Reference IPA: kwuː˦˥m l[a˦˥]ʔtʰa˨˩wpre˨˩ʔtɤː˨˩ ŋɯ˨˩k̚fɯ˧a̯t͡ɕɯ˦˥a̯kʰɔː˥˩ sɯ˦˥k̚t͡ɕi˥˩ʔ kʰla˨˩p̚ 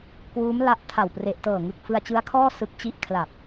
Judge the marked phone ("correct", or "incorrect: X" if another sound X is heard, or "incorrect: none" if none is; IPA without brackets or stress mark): correct